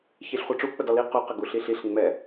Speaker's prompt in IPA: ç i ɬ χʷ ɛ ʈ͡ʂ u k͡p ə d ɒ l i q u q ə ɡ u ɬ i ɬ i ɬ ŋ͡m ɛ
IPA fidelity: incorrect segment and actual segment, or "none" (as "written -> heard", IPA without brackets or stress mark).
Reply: none